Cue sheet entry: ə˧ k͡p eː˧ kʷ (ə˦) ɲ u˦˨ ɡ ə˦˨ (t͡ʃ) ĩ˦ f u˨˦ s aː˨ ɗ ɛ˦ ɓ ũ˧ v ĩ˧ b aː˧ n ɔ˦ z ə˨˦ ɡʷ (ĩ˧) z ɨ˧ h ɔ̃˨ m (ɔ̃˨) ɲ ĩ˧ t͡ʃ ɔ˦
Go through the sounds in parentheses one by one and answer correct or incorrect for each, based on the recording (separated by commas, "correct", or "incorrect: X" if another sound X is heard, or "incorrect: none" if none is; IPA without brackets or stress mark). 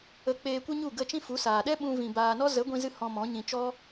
correct, correct, correct, incorrect: ɔ̃˨˦